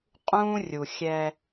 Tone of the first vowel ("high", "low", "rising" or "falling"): high